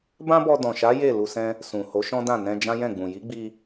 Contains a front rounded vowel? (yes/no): no